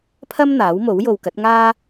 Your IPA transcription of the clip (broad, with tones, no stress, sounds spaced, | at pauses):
pʰ ɐ˥ m n̪ aː˨˥ w m o˨˥ w j o˨ w k ɐ˨˥ t̚ ŋ aː˥